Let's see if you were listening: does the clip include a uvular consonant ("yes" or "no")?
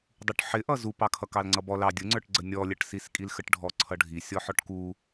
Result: no